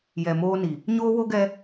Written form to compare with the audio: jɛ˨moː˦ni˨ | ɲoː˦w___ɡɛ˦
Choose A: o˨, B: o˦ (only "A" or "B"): B